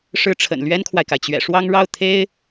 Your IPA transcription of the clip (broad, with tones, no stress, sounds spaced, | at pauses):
ʂ ɻ̩˥ ʈ͡ʂʰ ə̰˨˩ n l ɥ ɛ˥ n kʰ w a˨ ɪ̯ k a˩ ɪ̯ t͡ɕ ɥ ɛ̰˨˩ ʂ w ɑ˥ ŋ ɻ ɑ˥˩ ʊ̯ t̪ʰ e˥ ɪ̯